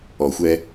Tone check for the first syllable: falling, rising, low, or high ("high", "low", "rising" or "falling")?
low